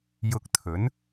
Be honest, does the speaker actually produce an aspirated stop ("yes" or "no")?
yes